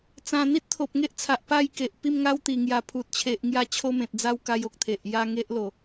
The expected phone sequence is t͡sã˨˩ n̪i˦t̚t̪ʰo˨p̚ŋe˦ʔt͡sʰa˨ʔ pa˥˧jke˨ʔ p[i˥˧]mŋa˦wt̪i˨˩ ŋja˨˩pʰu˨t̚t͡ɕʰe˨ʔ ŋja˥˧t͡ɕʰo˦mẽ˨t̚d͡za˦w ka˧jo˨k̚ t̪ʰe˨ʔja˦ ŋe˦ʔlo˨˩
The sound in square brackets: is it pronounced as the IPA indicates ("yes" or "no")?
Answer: yes